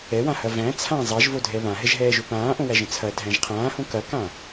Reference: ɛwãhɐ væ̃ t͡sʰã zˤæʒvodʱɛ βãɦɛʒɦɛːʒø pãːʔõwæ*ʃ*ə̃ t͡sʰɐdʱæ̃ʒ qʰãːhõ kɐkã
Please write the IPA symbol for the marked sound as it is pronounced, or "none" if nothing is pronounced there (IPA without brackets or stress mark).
ʒ